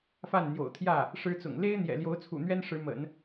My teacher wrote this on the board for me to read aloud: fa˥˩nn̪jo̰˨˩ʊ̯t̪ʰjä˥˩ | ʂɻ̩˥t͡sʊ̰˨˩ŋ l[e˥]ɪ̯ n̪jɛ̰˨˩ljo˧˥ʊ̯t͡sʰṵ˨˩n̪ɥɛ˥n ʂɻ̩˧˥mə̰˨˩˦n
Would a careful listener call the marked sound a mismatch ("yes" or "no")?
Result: no